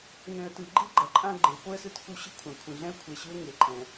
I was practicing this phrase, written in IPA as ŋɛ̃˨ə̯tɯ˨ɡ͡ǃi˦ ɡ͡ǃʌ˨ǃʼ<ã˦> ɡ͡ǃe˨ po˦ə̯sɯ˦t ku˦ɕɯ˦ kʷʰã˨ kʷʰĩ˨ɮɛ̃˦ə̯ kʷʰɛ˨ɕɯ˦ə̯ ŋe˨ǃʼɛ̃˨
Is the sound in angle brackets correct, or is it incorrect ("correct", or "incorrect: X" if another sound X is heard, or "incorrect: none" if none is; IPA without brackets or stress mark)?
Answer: correct